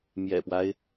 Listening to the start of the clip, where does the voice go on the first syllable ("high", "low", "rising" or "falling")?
low